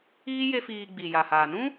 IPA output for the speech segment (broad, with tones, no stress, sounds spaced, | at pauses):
iː˦ j e˦ f iː˧ ɡ͡b i˨ j a˨ h aː˨ n ũ˦